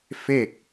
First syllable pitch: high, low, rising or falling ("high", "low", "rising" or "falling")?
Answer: falling